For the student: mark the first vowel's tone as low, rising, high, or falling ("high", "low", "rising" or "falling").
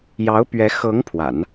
rising